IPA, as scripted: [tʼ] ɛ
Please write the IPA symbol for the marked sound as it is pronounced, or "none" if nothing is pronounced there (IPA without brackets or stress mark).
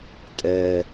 tʼ